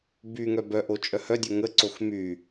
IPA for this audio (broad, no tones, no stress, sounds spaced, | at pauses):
b y ŋ œ b œ ʔ o t͡ʃʼ œ h œ dʲ o ŋ ə ǀ o x m y